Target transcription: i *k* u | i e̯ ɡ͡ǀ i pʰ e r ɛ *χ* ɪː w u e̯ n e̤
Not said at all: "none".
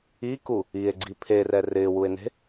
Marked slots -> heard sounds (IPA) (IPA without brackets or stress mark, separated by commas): k, r